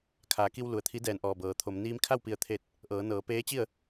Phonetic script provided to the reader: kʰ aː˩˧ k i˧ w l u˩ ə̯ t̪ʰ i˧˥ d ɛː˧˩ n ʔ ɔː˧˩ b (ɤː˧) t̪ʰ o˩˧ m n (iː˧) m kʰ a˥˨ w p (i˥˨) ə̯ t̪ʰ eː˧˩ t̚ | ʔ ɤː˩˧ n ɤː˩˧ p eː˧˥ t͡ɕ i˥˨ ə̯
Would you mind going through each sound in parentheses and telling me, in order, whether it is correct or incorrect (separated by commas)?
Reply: incorrect, correct, incorrect